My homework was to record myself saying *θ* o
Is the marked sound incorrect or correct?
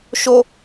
incorrect